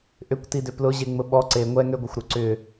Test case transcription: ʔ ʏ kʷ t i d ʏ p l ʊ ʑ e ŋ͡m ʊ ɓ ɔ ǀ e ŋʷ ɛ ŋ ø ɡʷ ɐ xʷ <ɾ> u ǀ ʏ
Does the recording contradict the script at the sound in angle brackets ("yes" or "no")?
no